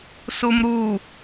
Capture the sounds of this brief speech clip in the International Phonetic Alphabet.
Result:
sumɾu

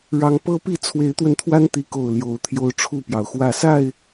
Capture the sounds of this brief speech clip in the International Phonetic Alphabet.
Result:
ɻɑ˨˦ŋpɤ˦pi˥˨ t͡sʰwe˨˦ɪ̯t̪wə˧nt̪ʰwa˦n t̪i˨˦ko˨˩ʊ̯ ljo˨˦ʊ̯ t̪ʰjo˦ʊ̯ʈ͡ʂʰu˥˨pjɑ˩ʊ̯xwä˥˨ sa˥˨ɪ̯

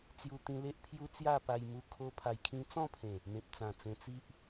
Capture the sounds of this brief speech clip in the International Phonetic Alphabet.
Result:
t͡sju˧t̪ĩ˧le˦ʔpʰju˦ t͡sja˥˧pa˧jmu˧ kʰo˦ pʰa˧j kʰĩ˧t͡sɔ̃˥˧pʰẽ˨˩ | mẽ˨p̚t͡sã˨˩ t͡sẽ˧t͡si˦ʔ

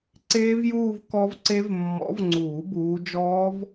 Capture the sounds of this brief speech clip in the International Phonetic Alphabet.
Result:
ǀeː˦˥vjuː˥˧v kɔ˦˥vǀe˦˥v mːɔ̰˨˦vŋ͡ǀuː˨˩˦ buː˨˦ d͡ʒɔː˦˥v

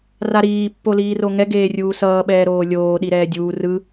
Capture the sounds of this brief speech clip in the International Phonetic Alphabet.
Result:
raɾiː pːoliːroŋɛ ɡeːrʲuːsʌː ɓɛːɾoːlʲoː ɗiɾɛːdʲuː rɯ

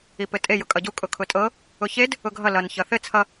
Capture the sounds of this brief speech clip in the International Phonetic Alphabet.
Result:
ipɘtʼe jʊkʼʌɟu kʼʊkʰʊtʼɤ | ʊçed | ʊɡʱʌ lʌn çʌθɘ t͡sʰʌ

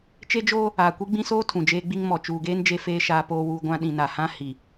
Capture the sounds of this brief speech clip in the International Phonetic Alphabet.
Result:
t͡ʃe˦d͡ʒoː˦ | aː˨kʷi˦ɡ͡bĩ˦soː˦ tʰũ˨d͡ʒeː˦ɡ͡bi˦ŋ mɔ˨t͡ʃuː˨ɡeː˦n d͡ʒe˦feː˦ ʃaː˦poː˦wuː˦ ɡʷã˦ ɗĩ˨na˨hã˦ hi˨

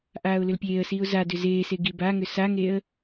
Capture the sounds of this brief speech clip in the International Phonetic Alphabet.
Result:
ʔaːʊ̯lʏlpʲeːə̯siːʊ̯ zadʏ zeːse ɡibaŋʏ saŋeə̯

